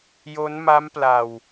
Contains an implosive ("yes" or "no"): no